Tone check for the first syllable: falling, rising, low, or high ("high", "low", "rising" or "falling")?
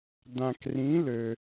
low